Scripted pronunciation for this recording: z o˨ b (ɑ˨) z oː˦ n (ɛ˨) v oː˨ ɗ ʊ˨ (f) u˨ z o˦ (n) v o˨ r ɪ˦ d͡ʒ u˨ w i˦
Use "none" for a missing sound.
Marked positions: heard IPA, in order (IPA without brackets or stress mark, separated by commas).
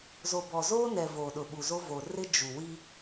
ɔ˨, ɛ˨, ɓ, none